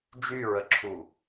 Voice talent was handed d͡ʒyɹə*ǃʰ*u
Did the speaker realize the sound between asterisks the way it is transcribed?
no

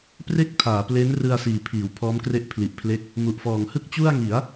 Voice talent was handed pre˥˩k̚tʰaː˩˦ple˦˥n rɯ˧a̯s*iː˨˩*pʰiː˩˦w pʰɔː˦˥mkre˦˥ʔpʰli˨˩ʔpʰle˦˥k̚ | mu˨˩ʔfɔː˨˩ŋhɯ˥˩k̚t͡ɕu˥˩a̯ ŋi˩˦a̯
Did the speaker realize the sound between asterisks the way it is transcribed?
yes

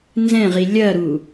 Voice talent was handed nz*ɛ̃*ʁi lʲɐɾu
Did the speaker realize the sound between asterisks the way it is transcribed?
yes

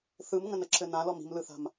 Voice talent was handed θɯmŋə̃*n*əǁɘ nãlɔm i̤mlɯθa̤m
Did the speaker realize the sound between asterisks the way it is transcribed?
yes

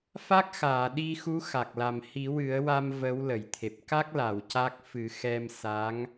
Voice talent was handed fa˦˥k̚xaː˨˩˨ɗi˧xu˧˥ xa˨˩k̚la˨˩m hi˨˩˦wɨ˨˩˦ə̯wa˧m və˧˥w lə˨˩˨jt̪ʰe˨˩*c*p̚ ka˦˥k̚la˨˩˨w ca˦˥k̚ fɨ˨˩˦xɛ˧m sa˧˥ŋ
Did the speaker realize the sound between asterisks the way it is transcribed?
no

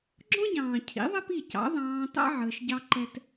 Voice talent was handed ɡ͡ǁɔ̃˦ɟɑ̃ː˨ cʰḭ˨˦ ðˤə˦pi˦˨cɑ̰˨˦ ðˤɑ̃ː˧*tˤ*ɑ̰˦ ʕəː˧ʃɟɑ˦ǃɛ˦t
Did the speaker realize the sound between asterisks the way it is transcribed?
no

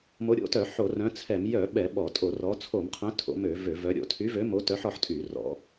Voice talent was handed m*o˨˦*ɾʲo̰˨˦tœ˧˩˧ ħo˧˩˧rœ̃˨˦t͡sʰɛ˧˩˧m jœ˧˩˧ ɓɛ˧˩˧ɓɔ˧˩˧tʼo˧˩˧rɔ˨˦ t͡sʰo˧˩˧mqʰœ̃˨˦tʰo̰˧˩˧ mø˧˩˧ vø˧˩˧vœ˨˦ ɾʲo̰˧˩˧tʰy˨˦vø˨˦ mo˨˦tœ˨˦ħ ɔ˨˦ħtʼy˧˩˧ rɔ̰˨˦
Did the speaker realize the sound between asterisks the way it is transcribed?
yes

